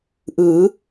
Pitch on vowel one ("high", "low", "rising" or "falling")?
rising